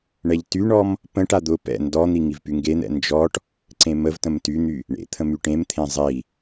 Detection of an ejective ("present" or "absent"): absent